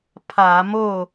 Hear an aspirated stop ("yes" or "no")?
yes